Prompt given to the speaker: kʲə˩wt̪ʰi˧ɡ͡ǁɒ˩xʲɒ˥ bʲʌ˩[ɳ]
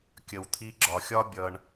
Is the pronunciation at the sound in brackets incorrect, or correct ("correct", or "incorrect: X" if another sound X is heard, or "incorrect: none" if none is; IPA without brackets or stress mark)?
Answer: correct